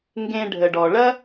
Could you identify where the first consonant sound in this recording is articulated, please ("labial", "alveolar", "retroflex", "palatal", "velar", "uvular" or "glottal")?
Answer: velar